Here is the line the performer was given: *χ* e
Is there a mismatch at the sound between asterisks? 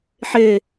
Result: yes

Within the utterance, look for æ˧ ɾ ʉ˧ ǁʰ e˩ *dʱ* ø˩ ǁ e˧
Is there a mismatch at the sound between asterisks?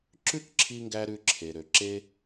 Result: yes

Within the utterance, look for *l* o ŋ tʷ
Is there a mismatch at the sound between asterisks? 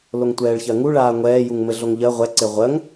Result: no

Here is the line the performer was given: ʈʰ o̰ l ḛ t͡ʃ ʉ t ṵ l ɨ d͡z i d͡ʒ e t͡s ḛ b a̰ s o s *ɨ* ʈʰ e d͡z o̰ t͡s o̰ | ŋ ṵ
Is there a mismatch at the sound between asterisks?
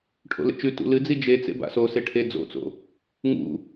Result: yes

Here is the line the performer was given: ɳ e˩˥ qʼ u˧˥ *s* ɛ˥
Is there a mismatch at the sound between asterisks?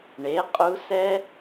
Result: no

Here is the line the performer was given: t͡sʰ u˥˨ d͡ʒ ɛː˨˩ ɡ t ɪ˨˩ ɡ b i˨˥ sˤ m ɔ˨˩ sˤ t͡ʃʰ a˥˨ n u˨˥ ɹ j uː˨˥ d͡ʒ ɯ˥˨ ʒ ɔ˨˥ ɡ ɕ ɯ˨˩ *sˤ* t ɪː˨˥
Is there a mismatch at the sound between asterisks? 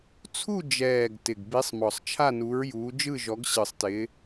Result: no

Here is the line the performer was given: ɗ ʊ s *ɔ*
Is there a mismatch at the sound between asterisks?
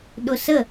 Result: yes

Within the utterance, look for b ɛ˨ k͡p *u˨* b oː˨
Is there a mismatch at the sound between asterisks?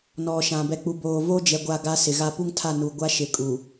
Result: no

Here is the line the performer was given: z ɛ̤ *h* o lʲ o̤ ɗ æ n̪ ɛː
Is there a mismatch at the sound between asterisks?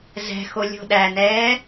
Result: yes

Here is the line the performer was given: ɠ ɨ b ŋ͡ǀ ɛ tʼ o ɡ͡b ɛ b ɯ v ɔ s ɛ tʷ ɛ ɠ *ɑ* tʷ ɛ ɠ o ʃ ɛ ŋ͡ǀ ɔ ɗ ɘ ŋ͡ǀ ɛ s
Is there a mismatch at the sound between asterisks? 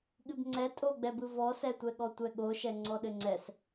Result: yes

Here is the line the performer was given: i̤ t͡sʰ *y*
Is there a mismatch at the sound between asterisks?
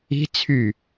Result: no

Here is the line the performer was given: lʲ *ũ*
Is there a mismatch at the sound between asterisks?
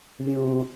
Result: no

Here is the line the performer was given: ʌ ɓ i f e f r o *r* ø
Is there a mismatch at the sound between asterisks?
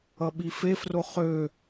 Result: yes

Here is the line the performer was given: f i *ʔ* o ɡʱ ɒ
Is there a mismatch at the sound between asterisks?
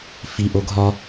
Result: no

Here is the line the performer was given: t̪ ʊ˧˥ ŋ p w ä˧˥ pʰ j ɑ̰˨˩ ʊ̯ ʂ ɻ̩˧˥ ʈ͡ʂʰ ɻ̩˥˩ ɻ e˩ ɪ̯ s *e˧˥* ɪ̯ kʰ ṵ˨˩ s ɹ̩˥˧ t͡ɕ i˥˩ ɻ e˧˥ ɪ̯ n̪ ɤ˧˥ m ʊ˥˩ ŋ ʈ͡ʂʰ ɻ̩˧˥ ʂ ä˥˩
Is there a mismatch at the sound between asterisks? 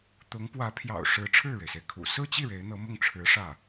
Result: yes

